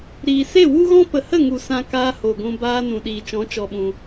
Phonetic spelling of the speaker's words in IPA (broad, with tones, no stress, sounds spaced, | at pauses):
ɾ iː˨ s e˦˨ w u˦ ɣ ɔ̃˦ p ə˨ h ə˦˨ ŋ u˨ s ã˧ k aː˧ h o˨ ɡʷ ũ˧ b aː˧ n ũ˨ ɗ iː˨ t͡ʃ ɔ̃˨˦ t͡ʃ ɔ˧ ɓ ũ˧